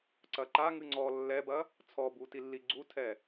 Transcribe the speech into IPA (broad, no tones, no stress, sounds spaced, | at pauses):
ǀ ɐ ǃ a ŋ ɨ ŋ͡ǀ ɔ lː ɛ b ɐ | t͡sʰ ɔ b u t i lː i ɡ͡ǀ u tʰ ɛ